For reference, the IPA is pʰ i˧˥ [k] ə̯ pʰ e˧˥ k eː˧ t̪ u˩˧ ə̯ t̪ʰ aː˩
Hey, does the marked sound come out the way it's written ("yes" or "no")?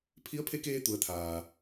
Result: no